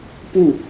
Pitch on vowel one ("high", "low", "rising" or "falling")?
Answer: falling